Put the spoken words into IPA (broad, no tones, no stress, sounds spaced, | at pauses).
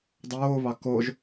dˤ oː β ɑ k o ʒ